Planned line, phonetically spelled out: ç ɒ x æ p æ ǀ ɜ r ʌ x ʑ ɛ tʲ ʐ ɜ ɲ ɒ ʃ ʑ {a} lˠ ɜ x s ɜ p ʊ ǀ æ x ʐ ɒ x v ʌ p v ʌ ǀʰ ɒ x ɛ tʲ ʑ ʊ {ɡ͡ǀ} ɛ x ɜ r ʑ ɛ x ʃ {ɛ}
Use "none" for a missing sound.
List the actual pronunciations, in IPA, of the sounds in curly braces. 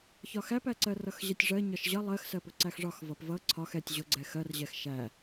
ʌ, ɡ͡ǀ, æ

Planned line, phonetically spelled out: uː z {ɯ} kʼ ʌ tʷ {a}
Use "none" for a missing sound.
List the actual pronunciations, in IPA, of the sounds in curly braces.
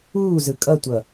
ɯ, ʌ

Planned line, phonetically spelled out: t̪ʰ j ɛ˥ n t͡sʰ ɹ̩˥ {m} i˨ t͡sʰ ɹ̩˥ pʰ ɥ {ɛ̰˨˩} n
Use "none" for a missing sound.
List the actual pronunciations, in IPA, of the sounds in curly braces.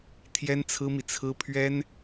m, ɛ˥

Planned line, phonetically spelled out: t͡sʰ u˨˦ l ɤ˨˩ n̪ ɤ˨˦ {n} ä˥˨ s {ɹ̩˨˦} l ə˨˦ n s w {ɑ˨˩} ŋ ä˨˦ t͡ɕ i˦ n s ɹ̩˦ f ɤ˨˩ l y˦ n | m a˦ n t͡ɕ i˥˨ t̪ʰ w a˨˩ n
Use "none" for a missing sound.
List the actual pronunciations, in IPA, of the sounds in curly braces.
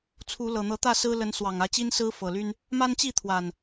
t̪, ɹ̩˦, ɑ˨˩

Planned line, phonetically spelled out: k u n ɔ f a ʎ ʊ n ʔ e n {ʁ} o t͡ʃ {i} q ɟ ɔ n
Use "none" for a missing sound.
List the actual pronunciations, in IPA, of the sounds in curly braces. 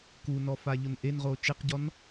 ʁ, e

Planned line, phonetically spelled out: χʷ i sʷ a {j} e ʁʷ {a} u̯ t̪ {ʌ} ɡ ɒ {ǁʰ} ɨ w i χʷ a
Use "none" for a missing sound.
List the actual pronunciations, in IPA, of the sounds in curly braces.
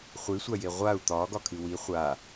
j, a, ɒ, kʰ

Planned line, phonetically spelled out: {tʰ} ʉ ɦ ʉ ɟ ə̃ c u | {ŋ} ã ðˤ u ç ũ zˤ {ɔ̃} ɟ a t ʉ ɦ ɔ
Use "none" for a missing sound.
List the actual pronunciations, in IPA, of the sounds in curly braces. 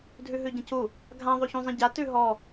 dʱ, ɡʱ, ə̃

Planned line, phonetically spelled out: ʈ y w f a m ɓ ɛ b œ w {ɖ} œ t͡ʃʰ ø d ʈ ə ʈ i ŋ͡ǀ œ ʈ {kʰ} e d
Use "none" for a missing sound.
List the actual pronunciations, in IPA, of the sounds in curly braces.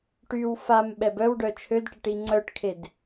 ɖ, kʰ

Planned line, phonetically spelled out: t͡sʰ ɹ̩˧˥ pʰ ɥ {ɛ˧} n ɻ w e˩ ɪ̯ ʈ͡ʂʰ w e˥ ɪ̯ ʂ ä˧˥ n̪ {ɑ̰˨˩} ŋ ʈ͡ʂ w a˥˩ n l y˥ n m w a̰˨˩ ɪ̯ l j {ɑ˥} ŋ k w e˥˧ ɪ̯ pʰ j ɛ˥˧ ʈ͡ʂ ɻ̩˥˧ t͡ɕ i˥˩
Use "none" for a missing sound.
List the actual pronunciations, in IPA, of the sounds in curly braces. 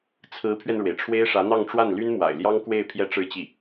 ɛ˧, ɑ˥˧, ɑ˥

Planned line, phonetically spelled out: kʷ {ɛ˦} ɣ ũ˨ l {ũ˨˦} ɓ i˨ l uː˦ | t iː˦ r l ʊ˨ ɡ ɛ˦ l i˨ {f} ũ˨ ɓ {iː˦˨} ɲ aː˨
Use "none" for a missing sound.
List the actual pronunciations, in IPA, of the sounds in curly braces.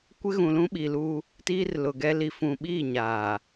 ɪ˦, ũ˦, f, iː˦˨

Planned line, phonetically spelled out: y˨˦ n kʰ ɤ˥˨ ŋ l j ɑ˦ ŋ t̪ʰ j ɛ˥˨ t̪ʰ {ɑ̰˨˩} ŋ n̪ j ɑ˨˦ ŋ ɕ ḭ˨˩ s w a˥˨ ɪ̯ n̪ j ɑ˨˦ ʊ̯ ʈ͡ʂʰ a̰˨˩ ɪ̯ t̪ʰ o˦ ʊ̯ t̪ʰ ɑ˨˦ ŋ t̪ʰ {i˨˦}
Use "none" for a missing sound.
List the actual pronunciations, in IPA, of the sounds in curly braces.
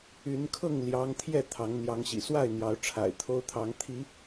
ɑ˨˦, i˨˦

